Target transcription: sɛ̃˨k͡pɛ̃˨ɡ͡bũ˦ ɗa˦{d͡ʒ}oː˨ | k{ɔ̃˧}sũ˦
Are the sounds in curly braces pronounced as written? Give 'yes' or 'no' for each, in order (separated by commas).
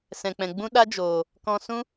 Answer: yes, yes